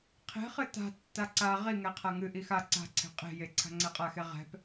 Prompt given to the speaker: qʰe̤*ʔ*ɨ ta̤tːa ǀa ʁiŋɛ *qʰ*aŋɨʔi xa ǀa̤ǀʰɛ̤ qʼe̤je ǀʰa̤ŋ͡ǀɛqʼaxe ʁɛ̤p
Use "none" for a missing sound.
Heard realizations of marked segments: χ, qʰ

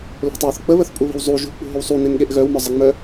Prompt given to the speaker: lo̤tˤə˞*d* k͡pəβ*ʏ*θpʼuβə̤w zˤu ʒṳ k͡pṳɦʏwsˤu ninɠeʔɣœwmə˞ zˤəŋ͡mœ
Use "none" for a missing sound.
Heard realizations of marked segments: θ, ə

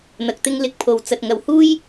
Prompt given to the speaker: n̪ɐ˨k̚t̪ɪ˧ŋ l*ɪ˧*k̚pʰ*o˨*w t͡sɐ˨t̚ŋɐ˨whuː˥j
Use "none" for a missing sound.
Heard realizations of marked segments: ɪ˧, o˨

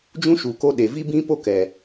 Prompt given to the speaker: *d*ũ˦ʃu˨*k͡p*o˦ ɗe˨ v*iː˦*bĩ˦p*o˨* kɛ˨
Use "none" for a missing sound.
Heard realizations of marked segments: d͡ʒ, k, i˦, o˦

